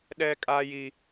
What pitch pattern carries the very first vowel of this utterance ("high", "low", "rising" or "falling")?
high